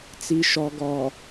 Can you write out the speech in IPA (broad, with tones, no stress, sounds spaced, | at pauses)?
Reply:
t͡s i˨ ʃ ɔ˨ ɡ ɔ˨